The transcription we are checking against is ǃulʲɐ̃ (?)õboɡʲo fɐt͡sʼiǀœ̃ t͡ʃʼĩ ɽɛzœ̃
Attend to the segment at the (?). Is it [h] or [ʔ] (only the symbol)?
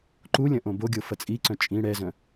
ʔ